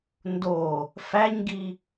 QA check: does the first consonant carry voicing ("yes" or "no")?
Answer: yes